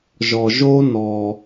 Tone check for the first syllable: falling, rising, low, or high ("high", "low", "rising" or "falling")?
low